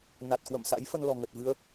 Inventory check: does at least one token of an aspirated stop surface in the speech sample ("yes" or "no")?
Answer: no